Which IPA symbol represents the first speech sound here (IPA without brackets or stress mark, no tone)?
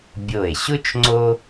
bʲ